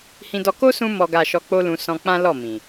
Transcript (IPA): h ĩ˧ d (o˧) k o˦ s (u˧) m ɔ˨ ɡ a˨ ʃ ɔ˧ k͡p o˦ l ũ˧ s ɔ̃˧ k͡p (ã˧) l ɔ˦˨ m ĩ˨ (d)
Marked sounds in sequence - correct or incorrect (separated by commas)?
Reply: incorrect, incorrect, incorrect, incorrect